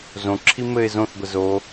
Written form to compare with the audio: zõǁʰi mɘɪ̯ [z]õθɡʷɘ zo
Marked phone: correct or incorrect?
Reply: correct